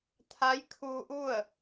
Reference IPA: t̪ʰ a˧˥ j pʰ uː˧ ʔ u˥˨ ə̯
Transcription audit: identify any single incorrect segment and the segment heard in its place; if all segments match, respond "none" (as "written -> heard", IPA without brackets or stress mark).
pʰ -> kʰ